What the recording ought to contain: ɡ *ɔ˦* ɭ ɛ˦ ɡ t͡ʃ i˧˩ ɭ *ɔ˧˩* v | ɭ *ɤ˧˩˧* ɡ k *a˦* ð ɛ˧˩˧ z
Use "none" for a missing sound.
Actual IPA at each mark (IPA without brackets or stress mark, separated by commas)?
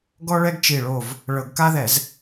ɔ˦, o˧˩, ɤ˧˩˧, a˦